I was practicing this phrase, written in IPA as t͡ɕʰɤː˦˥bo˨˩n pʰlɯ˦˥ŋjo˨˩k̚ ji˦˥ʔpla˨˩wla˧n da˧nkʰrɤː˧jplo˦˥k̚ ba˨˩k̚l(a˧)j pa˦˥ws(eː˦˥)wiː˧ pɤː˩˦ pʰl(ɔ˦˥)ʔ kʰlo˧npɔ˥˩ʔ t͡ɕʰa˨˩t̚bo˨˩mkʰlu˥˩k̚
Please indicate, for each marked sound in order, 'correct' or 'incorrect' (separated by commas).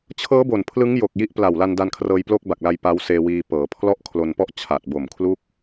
correct, incorrect, incorrect